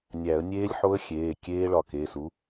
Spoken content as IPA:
nʲ æ˨˩˦ ə̯ nʲ eː˦˥ lʲ ħ o˦˥ ə̯ xʲ eː˩˧˩ kʲ eː˦˥ ɭ ɒ˧˩ k e˩˧˩ s u˨˥

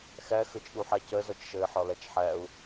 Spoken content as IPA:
x æ x ə t͡ʃ ɗ u ħ æ c ɜ z ɒ t͡ʃ ʃ ɜ ɪ̯ ħ ɒ l æ t͡ʃ ħ æ ʊ̯

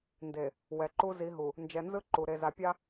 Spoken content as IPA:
n d e˨ | w ɛ˨ ǃ u˦ z i˨˦ ɦ u˨ | n d͡ʒ ɛ˨ n z ɯ˦ ǃ u˨ ɾ e˨ z a˨ pʲ a˦

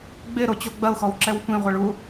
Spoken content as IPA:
ɡ͡b ɪ ɾ o t͡ɕ o ɡ͡b ɐ ʊ̯ x ɔ w ǁ ɛ w tʷ ĩ ʁʷ ɛ ɭ u

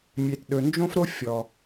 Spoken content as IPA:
mʲ e˨ t ɗ ɵ˨ n d͡ʒ õ˦ f ɾ o˦ fʲ ɔ˧

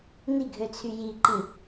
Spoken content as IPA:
n i ɡʱ ø t͡sʰ y j i ǃ ĩ

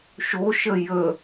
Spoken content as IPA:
ʃ o ʃ ə j ə

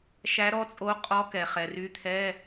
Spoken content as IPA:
ʃ æ˧˥ ɾ ɔ˧˥ t͡sʼ o˧˥ qʼ ɔ˧˥ k ɛ˩ χ ɛ˩ r y˧˥ t̪ʰ ɛ˧˥˧

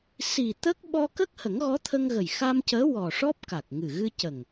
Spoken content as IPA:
s i˨˩ t̪ ə˦˥ k̚ ɓ ɔ˧ k ə˦˥ k̚ h ə˨˩˦ ŋ ɣ ɔ˧˥ t̪ʰ ə˧ ŋ ɣ ə˨˩ j x a˧ m c əː˧˥ w ɔ˨˩ ʂ ɔ˦˥ p̚ k a˨˩ k̚ ŋ ɨ˨˩ ɣ ɨ˧ c ə˨˩ ŋ

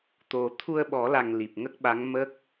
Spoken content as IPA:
t̪ o˨˩ t̪ʰ u˧ ə̯ ɓ ɔ˨˩˦ l a˨˩ ŋ l i˨˩ p̚ ŋ ə˦˥ k̚ ɓ a˧˥ ŋ m ə˦˥ k̚

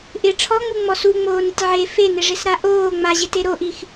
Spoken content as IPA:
ʔ ɪ ʈ͡ʂʰ ɔ ŋ͡m u ŋ͡m ɔ s u ŋ͡m oː n ɪ tʲ ʕ e f e n ɪ ʐ ɪ s ɾ a ʔ oː ŋ͡m a ʑ ɪ t e ɾ o ʔ i x

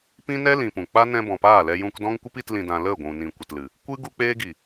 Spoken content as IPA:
p ĩ˦ n ɛ˦ l ĩ˨ p ũ˨ k͡p a˦ n ɛ̃˧ b ɔ̃˨ p aː˦˨ l ɛ˧ j ũ˧ k d ɔ̃˦ ŋ kʷ ɨ˦ p i˧ t l ĩ˨ d ã˨ l ə˦˨ ɡʷ ũ˨ n ĩ˨ kʷ ə˨ t l ɨ˨ | kʷ ɨ˦ ɡ u˦ k͡p eː˦ ɡ i˨

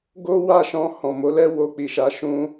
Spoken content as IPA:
ɡ o˦ w a˦˨ ʃ ɔ̃˧ h ɔ̃˨ m o˨˦ l ɛ˦ w o˧ k͡p i˨ ʃ a˨˦ ʃ ũ˧

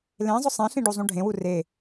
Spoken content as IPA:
l ẽ zˤ ʊ sˤ ẽ ɬ ĩ ɖ u zˤ ũ ɖʱ ẽ w u r e

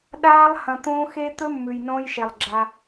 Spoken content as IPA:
ɗ aː˦ lˠ h ɐ̃˨ t̪ õː˦ x e˦ t̪ ɵ˦ mː ʉ˨ j n õː˦ j ʃ e˨ lˠ ɡ͡ǁ a˦

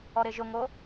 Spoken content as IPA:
ɔ ɾ ɪ ʒ ʊ ŋ o

